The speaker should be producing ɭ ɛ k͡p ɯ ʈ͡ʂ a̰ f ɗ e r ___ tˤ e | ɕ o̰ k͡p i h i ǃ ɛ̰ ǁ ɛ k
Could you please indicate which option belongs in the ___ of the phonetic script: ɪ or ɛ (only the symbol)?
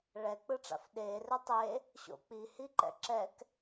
ɛ